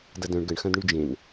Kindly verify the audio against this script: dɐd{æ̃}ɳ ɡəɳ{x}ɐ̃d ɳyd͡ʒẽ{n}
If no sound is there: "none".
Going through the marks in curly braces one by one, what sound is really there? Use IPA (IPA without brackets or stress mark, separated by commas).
œ̃, x, n